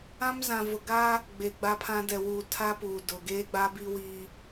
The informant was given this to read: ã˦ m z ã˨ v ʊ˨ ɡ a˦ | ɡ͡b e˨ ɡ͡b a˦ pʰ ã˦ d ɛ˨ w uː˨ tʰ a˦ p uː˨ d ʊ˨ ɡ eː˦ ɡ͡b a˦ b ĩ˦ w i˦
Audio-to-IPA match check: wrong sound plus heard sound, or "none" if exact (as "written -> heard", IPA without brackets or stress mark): ĩ˦ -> i˦